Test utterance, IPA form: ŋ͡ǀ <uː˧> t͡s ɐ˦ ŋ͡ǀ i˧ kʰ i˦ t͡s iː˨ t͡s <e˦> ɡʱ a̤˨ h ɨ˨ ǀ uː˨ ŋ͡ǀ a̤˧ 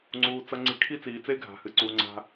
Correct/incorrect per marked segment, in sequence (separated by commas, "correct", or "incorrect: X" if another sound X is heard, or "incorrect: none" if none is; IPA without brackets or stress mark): correct, correct